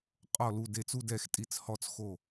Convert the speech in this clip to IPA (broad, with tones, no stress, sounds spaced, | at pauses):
qʼ ɔ˧˩ l u˧˩ d e˧˩ t͡s u˥˧ d ɛ˧˩ x tʼ i˧˩ t͡s h ɔ˧˩ t͡s x o˧˩